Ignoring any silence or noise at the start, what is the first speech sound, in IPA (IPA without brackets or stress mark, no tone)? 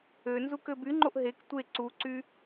ø